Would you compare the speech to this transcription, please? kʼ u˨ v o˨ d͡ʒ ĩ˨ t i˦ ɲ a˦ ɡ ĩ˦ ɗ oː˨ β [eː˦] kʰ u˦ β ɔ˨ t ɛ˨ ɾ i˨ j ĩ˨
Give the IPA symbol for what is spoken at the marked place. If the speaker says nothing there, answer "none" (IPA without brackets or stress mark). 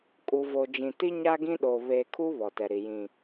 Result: eː˨